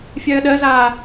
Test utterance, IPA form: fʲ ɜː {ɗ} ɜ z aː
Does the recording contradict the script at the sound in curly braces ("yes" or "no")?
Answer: no